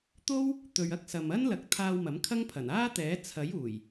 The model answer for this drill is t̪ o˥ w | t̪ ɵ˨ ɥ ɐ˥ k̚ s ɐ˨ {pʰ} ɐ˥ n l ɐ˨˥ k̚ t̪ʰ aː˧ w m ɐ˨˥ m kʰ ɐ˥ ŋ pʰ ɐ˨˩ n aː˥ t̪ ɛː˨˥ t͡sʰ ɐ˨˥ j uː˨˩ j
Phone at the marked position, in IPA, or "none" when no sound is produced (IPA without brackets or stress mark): m